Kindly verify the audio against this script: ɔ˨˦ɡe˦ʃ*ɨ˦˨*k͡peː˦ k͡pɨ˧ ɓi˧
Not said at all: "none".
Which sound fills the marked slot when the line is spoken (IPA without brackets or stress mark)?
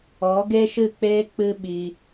ɨ˦˨